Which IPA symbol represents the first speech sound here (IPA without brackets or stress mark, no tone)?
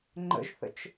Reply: ŋ͡ǃ